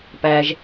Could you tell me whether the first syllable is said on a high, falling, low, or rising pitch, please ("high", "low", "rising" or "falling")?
high